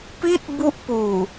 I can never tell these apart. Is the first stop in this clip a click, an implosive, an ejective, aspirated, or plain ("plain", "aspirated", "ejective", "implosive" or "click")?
plain